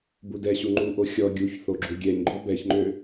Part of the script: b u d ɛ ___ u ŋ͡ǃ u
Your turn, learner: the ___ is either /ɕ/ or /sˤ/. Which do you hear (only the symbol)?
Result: ɕ